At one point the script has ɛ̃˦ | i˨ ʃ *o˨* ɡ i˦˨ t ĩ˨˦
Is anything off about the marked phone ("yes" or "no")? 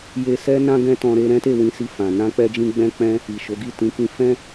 yes